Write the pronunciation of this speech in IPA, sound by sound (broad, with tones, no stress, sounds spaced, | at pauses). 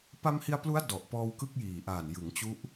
p a˧ m h i˧ a̯ p l u˦˥ a̯ d ɔ˨˩ ʔ p ɔː˧ w k ɯ˦˥ k̚ j iː˨˩ ʔ aː˨˩ n j ɯ˩˦ ŋ t͡ɕ u˦˥ ʔ